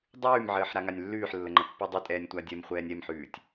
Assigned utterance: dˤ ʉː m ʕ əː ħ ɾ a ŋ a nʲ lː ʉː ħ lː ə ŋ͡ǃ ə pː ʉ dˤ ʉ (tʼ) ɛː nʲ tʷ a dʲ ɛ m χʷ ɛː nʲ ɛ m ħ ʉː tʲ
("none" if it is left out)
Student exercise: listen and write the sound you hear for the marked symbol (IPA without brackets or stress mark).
tʼ